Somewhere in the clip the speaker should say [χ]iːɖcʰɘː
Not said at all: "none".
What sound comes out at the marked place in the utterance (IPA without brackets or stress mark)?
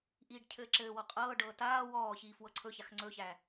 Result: ʔ